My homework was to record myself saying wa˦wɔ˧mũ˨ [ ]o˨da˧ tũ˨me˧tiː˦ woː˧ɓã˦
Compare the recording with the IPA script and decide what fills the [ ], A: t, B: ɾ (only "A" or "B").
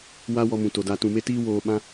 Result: A